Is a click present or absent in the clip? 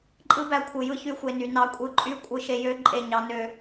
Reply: present